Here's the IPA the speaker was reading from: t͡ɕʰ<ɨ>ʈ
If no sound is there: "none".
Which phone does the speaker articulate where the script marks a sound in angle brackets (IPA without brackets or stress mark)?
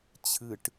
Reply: ɨ